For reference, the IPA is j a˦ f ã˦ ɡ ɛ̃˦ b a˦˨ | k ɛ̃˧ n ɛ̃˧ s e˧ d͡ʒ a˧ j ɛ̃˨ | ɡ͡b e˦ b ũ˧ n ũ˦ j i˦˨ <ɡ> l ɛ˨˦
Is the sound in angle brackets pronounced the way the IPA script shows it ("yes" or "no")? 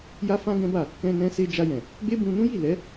no